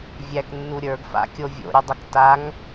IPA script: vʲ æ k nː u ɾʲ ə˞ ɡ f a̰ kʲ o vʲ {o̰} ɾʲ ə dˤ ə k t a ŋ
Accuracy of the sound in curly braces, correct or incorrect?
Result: correct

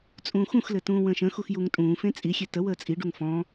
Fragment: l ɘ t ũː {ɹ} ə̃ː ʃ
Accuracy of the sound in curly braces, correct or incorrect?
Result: incorrect: w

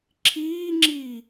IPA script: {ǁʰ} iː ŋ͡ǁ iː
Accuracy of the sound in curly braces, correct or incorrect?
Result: correct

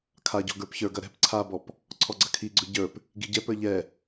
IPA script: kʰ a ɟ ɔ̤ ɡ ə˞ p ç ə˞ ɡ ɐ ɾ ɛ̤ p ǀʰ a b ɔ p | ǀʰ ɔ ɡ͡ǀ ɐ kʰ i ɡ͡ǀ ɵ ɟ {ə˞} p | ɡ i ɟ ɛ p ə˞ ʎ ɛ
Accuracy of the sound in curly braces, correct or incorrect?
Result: correct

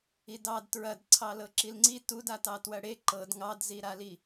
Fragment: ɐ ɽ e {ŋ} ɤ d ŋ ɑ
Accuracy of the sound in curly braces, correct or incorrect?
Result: incorrect: ǃ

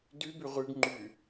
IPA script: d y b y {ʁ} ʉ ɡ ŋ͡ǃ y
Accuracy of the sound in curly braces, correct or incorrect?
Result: correct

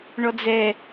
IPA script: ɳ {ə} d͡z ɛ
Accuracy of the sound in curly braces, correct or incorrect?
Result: incorrect: ɔ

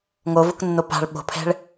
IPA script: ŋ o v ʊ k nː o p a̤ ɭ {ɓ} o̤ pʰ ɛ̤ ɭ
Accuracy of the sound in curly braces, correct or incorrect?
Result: correct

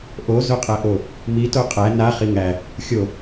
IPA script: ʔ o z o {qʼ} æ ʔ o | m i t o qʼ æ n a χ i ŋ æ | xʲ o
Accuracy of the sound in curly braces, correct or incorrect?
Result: correct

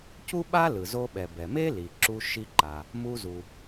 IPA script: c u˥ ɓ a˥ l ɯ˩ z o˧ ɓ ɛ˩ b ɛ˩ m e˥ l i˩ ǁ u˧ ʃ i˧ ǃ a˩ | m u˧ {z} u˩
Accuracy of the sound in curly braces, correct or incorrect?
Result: correct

